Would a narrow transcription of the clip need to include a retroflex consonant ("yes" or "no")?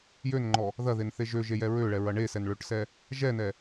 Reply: yes